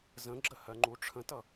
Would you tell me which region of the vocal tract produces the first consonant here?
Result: tongue tip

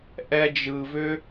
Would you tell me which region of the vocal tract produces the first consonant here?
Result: throat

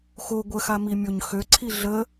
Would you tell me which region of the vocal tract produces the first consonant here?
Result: velum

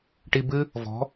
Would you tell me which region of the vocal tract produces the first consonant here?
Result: retroflex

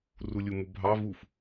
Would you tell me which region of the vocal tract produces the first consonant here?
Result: tongue tip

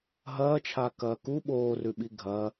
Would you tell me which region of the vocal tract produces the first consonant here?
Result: throat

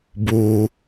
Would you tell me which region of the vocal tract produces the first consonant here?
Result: lips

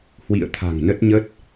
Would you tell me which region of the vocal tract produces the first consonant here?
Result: throat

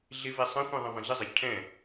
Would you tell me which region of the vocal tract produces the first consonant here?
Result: tongue tip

